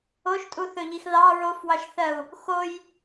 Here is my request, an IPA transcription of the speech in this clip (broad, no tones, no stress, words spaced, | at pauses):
oʃtʼuθɵʎix ðɑ ɹofwɑʃθɜu̯ | xoj